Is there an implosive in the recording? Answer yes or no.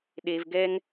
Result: yes